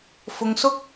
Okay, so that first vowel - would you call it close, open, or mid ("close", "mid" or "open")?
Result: close